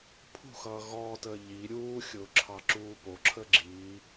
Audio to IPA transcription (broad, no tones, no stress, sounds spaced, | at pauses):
pʰ ṳ x ʌː ɣ ɔː t əː ʎ i ɾʲ uː xʲ ʊː ǁʰ ɑ ǁ uː p o ǁʰ ə ɡ͡ǁ i